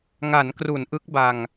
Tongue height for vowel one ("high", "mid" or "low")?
low